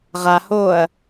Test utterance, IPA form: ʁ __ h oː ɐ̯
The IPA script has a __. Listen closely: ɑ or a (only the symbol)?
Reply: a